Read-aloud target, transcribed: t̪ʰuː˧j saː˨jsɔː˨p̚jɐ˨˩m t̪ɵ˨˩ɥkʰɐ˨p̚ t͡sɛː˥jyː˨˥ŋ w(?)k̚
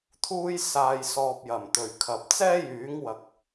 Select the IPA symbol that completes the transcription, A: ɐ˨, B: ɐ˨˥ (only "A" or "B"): A